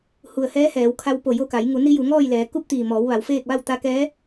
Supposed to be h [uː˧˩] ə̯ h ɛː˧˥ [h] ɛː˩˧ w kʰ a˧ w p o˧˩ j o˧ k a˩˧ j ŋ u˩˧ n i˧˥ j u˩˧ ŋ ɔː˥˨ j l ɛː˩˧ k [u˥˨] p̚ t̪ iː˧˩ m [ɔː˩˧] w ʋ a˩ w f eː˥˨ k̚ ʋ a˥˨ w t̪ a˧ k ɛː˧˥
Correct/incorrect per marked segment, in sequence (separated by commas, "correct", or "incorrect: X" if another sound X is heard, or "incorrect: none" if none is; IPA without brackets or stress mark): incorrect: u˧˩, correct, correct, correct